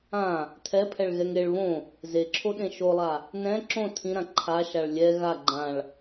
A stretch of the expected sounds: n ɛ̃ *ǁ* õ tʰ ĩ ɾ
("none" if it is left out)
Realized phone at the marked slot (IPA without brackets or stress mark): ǁ